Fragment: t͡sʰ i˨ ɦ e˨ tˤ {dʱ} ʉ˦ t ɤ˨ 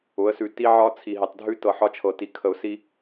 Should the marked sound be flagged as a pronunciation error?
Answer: no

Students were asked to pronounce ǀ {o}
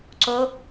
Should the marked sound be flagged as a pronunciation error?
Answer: no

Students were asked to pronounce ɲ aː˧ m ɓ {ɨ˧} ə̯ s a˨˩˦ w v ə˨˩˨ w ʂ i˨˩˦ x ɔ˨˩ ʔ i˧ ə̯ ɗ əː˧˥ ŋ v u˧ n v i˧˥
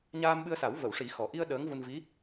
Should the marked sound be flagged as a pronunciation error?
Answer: no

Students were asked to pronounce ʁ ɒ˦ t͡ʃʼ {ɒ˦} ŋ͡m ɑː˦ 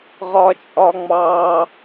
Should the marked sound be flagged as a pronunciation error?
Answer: no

